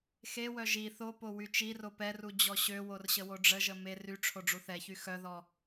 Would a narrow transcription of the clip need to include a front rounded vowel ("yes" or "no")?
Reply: yes